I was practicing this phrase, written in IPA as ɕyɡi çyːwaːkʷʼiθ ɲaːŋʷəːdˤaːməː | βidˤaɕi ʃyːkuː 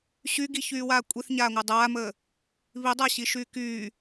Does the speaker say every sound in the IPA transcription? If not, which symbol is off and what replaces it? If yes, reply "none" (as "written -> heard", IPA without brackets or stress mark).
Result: uː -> yː